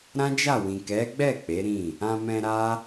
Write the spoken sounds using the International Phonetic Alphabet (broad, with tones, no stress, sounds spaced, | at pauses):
ɾ ã˦ d͡ʒ a˦˨ w ĩ˨ k ɛ˨˦ ɡ͡b ɛ˦˨ k͡p e˨˦ ɾ ĩ˦˨ | ã˧ m ɛ̃˧ ɾ a˦